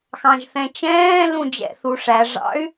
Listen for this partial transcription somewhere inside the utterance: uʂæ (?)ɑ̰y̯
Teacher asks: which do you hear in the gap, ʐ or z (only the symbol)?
ʐ